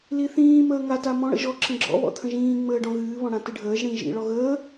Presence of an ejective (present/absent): absent